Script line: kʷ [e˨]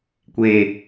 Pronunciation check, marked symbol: incorrect: eː˨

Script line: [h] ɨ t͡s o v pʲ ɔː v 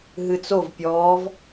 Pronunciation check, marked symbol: incorrect: ɦ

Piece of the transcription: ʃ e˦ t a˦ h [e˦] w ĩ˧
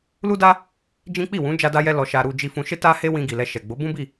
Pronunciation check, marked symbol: correct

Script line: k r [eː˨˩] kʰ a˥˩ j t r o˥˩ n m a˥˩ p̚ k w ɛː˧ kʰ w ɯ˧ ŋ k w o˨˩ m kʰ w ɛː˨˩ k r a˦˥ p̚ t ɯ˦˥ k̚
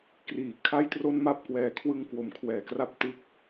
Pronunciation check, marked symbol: incorrect: iː˨˩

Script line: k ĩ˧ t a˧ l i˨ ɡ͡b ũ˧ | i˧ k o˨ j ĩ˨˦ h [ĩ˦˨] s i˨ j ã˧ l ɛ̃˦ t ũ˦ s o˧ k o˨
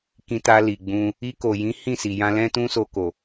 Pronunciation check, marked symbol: correct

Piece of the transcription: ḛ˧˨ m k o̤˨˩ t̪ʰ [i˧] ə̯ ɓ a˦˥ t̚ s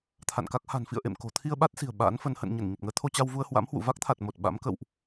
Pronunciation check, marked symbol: correct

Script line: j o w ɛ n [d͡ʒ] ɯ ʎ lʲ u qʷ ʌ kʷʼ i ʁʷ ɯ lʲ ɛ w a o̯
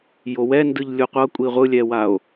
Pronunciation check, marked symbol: incorrect: d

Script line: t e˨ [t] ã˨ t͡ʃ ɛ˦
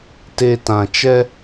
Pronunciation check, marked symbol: correct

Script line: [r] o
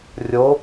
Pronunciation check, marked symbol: incorrect: rʲ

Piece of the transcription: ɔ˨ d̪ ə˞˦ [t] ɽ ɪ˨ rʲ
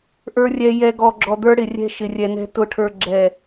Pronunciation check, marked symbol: incorrect: none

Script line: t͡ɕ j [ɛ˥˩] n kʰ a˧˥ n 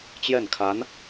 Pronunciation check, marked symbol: correct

